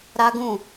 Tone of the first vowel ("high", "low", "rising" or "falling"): high